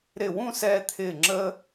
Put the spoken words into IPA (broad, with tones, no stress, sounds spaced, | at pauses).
ɾ ɪ˧˩ w ũ˥˧ s ɛː˧ t̪ʰ ɪː˧˩ ŋ͡ǁ əː˧